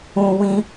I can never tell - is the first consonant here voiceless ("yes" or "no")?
no